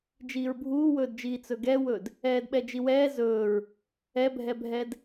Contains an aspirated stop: no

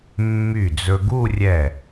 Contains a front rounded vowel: yes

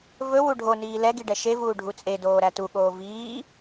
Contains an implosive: yes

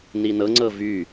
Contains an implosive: no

